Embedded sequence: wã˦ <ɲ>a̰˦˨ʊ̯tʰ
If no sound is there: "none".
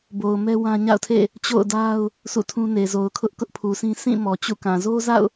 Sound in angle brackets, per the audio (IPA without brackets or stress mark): ɲ